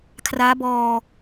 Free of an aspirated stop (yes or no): no